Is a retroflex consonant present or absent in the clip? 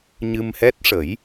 present